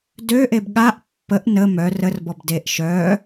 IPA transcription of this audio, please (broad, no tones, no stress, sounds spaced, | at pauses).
d ø ʔ e b ɠ a ʔ pː ə ʔ n ə m œ r ə r b ɔ b d e ʔ ʃ œ